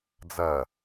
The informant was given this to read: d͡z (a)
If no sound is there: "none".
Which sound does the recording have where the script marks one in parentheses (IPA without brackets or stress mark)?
ɐ